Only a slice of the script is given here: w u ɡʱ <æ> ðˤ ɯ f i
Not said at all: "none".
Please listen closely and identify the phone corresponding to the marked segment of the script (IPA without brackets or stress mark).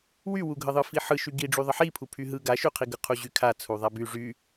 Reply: ə